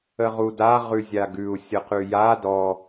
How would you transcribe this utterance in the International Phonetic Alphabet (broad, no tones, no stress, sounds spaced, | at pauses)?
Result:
ə ʁ u d a ʁ ʉ zʲ a ɡ ʉ u̯ sʲ ə q ʉ j a d ɔ